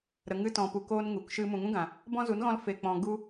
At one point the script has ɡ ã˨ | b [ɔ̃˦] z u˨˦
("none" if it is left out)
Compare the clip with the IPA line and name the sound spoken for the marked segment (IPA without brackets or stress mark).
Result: ɔ̃˦